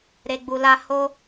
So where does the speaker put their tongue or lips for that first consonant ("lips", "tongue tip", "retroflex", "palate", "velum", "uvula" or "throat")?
tongue tip